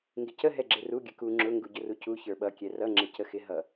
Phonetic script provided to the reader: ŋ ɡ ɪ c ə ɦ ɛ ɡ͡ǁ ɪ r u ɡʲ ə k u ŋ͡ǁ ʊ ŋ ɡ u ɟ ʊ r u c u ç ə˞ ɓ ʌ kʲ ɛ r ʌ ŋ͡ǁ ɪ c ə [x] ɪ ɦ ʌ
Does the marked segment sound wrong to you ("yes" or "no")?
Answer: no